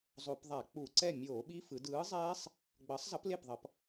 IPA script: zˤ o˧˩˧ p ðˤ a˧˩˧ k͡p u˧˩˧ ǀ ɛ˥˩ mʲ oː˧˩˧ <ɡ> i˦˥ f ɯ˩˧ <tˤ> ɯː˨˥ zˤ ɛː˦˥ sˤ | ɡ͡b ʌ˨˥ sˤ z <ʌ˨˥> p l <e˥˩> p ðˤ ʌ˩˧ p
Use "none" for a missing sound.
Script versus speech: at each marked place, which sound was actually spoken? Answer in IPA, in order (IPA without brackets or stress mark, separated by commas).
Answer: ɓ, d, ʌ˨˥, e˥˩